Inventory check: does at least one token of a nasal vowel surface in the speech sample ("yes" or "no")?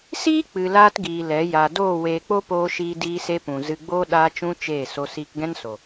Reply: yes